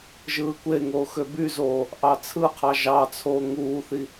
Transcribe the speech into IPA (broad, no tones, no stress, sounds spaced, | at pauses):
ʒ ɯː kʷ e ŋ oː x ø b y z oː | ʔ ɑ t͡sʰ ɯ qʰ ɑ ʒ ɑ t͡sʰ oː ŋ uː θ i